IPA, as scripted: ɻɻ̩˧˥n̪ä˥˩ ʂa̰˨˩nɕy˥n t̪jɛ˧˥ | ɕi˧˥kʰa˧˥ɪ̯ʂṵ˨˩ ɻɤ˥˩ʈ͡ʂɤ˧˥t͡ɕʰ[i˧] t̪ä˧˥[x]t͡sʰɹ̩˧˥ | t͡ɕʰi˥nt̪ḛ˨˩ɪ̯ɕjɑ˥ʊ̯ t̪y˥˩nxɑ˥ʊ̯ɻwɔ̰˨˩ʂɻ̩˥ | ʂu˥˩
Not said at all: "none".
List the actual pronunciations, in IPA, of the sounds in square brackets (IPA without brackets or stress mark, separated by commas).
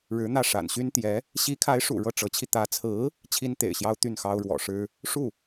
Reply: i˧, none